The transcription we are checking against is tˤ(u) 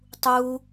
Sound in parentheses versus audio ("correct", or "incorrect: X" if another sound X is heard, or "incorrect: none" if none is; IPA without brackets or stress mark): correct